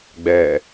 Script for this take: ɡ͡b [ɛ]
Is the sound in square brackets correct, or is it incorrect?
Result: correct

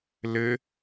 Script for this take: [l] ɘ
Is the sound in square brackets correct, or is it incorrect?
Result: correct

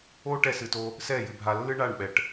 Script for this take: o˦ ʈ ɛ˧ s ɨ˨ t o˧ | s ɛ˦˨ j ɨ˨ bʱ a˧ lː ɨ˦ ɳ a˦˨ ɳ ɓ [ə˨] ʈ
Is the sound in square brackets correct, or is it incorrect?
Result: incorrect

